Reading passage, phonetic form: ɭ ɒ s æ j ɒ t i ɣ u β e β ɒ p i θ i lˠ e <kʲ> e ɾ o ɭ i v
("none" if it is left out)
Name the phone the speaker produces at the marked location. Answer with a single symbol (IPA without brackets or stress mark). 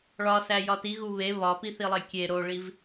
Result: kʲ